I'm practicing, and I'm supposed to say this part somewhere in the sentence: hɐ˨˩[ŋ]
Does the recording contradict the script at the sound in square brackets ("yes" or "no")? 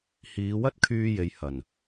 yes